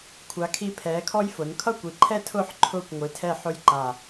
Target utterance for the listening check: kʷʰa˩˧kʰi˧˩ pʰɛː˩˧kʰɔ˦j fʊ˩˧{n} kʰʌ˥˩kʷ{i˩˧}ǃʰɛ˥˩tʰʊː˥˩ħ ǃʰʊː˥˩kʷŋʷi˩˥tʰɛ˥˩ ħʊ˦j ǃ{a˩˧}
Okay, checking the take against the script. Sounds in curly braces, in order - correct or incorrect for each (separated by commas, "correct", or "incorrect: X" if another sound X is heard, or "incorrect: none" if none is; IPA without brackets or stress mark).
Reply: correct, correct, incorrect: a˧˩